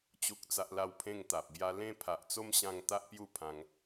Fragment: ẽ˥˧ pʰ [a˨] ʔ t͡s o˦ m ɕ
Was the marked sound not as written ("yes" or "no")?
no